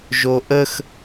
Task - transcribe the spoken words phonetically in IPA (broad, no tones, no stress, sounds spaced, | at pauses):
ʒ o ʔ ə x